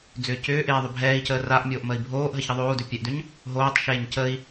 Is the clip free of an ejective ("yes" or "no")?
yes